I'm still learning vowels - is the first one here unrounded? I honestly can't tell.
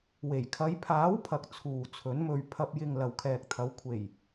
yes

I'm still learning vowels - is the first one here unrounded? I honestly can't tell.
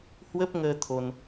yes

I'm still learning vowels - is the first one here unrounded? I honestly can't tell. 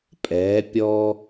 yes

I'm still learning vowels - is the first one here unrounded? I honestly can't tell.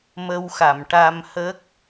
yes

